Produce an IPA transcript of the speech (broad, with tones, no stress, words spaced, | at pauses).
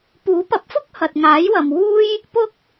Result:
puː˨˥pɐ˨˥p̚fʊ˥k̚ hɐ˨t̚ŋaː˨˥jwɐ˨mwuː˥j | pʊ˥k̚